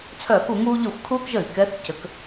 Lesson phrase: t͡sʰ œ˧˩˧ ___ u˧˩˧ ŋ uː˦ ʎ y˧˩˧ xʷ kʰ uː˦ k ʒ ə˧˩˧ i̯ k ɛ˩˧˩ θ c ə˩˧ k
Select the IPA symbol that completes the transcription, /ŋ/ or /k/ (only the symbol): k